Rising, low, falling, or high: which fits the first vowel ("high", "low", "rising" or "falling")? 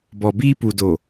low